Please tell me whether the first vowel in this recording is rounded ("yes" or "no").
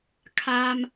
no